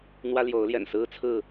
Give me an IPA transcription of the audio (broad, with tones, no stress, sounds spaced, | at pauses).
n̪ w ä˦ l j o˨˦ ʊ̯ l j ɛ̰˨˩ n s ɹ̩˦ t͡sʰ ɹ̩˥˨